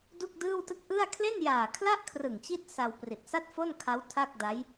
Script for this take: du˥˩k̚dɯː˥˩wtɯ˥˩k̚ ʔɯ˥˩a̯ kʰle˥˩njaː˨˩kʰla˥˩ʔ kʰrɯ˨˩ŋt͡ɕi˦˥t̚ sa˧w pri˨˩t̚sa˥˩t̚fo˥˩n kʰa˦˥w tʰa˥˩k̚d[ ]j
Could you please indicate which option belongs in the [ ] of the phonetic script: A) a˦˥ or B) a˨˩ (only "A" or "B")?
A